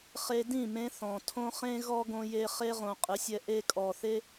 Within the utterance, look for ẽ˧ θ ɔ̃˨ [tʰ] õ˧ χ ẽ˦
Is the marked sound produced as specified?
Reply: yes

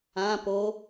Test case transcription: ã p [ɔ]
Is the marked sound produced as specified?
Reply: no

